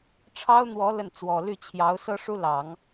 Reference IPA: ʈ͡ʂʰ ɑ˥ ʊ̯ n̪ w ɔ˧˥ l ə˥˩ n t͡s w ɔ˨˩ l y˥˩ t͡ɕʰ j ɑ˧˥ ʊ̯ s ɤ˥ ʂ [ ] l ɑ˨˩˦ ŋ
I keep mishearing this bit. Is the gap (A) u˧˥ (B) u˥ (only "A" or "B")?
B